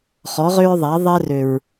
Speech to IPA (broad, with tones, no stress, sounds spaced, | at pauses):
χ ɔ˨˦ ʁ ø˦ ɹ ðˤ æ˨˦ ðˤ ɛ˦ r ø˨ ɹ